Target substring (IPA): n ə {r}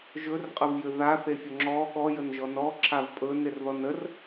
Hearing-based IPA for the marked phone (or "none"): r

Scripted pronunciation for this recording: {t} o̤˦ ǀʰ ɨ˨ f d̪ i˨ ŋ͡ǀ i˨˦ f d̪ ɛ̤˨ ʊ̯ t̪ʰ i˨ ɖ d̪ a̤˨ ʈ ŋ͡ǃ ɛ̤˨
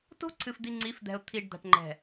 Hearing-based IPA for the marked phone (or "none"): t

